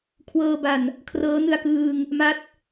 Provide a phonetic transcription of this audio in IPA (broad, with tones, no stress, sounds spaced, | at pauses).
kʰ w ɤː˧ b a˨˩ n | kʰ r ɤː˦˥ n ɯ˧ a̯ k ɯː˧ ŋ | m a˦˥ t̚